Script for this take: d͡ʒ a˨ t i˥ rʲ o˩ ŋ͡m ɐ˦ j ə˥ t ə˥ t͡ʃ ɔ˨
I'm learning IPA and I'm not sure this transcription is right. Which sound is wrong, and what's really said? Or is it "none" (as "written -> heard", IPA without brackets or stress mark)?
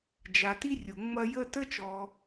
none